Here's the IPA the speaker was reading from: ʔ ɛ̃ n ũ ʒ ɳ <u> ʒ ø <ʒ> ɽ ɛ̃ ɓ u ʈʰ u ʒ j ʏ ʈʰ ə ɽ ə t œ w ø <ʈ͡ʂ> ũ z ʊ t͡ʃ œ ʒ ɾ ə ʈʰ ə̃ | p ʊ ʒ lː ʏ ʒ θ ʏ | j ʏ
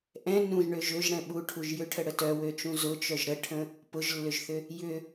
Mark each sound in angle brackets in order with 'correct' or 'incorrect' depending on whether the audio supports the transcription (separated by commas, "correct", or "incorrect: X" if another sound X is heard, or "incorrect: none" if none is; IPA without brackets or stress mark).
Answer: incorrect: ø, correct, incorrect: t͡ʃ